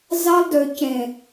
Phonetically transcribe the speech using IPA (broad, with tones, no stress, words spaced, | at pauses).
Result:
zɑ˦lˠdø˨cẽ˨